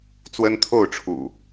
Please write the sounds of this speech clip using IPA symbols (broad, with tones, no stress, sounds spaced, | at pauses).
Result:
t͡s w ə˦ n t̪ʰ o˥˨ ʊ̯ ʈ͡ʂʰ ṵ˨˩